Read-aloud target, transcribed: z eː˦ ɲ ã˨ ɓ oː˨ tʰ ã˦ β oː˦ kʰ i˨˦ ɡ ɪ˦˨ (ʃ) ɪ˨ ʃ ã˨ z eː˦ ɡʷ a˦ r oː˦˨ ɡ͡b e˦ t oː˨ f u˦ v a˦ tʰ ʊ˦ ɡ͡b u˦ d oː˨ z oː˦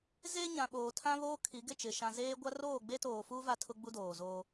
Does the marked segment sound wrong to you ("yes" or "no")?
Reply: yes